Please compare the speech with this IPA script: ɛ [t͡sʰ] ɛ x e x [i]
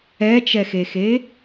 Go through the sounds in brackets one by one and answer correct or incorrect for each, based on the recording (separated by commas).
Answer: incorrect, incorrect